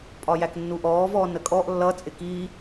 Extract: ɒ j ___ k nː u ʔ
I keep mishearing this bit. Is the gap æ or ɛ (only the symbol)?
æ